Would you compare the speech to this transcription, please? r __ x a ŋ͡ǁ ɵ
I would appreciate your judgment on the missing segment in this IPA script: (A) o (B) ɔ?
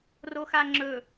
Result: A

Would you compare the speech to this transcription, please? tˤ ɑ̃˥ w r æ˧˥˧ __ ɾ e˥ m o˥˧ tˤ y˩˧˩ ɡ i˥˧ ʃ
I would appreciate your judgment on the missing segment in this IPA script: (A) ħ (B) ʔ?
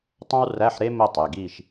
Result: A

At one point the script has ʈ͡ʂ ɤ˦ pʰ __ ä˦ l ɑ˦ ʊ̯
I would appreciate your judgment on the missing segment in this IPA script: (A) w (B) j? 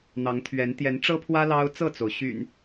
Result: A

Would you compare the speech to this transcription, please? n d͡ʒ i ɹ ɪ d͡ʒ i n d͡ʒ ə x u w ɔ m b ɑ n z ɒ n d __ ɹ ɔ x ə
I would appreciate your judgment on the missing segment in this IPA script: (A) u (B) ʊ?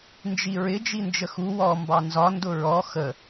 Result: B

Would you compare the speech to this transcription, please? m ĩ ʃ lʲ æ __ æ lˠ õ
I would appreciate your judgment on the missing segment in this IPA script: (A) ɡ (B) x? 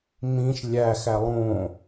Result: B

